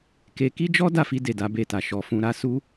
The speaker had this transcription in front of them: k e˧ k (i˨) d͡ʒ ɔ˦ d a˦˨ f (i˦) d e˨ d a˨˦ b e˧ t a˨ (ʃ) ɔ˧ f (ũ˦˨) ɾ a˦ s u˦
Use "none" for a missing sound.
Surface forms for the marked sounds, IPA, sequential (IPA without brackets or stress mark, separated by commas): i˦, i˧, ʃ, ũ˦